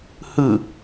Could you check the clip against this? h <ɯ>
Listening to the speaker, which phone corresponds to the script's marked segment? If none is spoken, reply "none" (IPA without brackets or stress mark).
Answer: ɯ